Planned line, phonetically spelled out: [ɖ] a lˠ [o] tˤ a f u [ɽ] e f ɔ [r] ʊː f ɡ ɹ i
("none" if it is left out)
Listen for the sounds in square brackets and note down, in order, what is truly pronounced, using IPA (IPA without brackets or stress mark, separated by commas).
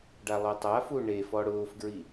ɖ, o, ɳ, ɽ